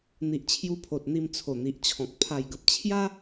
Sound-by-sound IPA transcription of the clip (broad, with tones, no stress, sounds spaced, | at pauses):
n̪ i˨ ʔ t͡ɕʰ j u˧ pʰ o˨ t̚ n̪ i˧ m t͡sʰ o˨˩ n̪ i˨ ʔ t͡ɕʰ ɔ̃˨ k̚ pʰ a˨˩ j ɡ ə˨ p̚ t͡ɕʰ j a˦